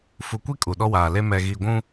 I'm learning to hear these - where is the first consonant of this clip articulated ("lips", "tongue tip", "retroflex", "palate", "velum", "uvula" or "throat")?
lips